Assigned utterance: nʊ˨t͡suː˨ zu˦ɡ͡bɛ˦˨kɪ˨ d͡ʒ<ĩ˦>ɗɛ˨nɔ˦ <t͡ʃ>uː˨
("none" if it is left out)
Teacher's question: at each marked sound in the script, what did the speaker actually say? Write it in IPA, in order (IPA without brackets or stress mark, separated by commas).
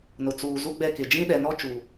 ĩ˦, t͡ʃ